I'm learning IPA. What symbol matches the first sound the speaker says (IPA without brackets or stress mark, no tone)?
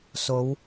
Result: s